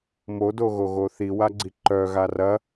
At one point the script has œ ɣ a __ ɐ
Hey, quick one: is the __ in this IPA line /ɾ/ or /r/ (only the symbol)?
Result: r